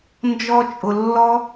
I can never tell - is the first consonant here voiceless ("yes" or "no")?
no